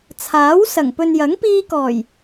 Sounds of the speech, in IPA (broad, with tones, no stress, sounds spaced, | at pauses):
t͡sʰ aː˨˥ w s ɐ˨˩ ŋ p ɵ˨ n j ɐ˨˥ ŋ p iː˧ k ɔː˨˩ j